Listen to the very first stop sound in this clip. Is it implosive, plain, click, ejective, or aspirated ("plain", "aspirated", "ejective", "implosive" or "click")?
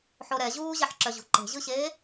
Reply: click